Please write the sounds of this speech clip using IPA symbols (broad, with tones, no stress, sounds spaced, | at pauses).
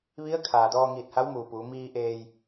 ʋ i˧˥ ə̯ kʰ aː˩ d ɔː˧ ŋ iː˧˩ t̚ h a˧˥ w m uː˩ p uː˩˧ m iː˧ ʔ eː˧ j